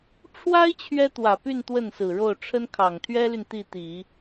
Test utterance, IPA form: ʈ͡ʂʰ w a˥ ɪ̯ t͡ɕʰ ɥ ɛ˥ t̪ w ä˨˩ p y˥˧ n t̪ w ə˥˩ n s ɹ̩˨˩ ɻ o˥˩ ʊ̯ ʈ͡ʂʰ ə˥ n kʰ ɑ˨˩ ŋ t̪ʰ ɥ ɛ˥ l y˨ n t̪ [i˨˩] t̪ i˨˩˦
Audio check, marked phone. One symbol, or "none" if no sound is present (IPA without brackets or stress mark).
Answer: i˥˩